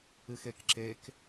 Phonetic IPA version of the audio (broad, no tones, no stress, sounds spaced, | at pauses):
ɨ x e k ǁ e k